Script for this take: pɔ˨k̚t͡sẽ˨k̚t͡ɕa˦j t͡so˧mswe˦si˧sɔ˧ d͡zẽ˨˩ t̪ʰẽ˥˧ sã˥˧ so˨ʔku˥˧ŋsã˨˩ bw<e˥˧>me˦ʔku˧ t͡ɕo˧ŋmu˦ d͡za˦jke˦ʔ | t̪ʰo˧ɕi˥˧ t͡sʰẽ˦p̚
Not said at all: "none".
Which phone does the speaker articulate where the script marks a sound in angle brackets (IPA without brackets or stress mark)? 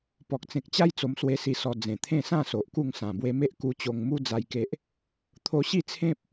e˧